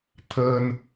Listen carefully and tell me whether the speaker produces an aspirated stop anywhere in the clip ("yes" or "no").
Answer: yes